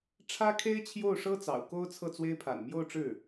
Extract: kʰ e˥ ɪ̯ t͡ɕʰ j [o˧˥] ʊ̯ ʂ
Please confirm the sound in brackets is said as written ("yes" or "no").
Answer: no